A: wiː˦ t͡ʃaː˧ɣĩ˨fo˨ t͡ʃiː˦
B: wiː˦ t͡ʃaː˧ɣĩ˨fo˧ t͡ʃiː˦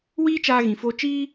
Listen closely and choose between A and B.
B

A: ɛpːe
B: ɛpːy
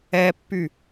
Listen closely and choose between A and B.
B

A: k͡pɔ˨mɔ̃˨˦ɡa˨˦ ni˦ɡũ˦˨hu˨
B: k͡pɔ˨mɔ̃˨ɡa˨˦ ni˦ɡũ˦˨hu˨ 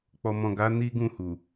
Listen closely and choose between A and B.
B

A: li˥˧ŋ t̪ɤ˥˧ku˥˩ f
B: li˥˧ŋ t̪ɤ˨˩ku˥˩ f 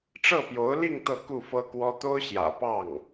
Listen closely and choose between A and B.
A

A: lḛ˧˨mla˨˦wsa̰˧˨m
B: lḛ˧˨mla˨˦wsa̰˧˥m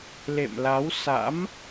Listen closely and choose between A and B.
B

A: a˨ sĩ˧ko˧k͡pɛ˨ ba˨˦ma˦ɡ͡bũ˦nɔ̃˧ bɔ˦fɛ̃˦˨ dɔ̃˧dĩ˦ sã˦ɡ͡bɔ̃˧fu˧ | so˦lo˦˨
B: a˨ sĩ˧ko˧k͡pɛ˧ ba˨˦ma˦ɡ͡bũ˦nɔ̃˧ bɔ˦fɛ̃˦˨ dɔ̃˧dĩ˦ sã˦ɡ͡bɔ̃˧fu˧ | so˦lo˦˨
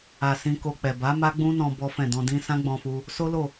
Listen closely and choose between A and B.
A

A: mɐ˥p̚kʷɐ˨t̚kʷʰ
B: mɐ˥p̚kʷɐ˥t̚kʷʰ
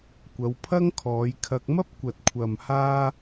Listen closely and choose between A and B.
A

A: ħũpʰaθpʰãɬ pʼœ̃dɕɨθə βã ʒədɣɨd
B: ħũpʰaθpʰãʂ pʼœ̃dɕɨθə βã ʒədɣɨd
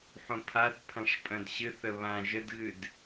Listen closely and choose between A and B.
B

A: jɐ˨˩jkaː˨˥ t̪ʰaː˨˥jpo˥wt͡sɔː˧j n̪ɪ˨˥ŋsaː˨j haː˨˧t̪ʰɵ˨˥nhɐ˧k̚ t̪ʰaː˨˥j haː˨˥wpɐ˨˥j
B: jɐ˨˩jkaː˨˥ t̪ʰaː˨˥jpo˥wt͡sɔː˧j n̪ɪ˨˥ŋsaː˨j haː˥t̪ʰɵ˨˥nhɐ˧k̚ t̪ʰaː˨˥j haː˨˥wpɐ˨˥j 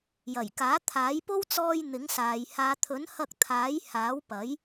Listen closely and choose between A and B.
A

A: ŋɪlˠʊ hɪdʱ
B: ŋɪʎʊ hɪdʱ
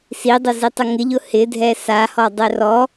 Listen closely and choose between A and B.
B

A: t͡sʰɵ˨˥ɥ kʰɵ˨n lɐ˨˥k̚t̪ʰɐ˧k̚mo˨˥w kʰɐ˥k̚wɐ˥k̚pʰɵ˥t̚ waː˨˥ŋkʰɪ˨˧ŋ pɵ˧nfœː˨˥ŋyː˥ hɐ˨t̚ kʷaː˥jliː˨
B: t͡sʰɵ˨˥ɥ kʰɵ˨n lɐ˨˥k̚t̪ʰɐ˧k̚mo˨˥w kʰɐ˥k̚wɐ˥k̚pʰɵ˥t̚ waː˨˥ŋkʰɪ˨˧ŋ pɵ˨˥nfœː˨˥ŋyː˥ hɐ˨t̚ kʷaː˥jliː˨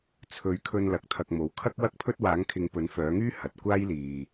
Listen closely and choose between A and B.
B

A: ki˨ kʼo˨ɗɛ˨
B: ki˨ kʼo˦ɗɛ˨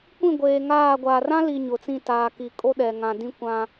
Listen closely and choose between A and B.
B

